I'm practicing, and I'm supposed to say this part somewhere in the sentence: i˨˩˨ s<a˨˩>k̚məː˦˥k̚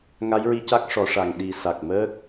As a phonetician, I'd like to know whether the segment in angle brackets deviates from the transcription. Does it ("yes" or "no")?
no